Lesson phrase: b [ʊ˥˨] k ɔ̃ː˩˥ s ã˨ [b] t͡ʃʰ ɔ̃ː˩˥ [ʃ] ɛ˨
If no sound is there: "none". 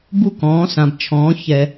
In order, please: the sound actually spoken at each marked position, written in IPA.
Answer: u˥˨, b, ç

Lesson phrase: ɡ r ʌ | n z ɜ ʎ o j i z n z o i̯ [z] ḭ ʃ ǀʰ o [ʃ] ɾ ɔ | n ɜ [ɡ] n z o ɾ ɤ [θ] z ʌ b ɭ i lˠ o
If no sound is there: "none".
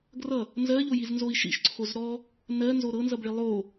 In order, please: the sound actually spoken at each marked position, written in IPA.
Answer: ʃ, z, none, n

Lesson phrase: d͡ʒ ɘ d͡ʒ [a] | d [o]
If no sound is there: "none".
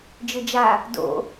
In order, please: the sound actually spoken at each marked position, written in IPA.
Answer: a, o̰

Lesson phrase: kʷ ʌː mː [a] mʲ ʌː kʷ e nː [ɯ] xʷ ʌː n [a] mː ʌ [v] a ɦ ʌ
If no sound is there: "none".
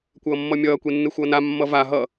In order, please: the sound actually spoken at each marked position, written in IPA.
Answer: ʌ, ɯ, a, v

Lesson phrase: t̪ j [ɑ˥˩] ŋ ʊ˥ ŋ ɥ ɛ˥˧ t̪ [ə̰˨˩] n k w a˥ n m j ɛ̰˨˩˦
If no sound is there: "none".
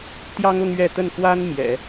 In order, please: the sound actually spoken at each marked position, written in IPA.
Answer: ɑ˥, ə˥˩

